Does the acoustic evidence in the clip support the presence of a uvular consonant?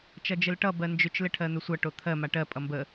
no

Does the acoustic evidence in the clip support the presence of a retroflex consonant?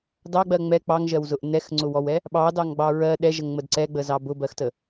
no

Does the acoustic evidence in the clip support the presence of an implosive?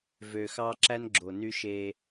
no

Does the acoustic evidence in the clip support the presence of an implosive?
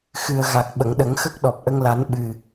yes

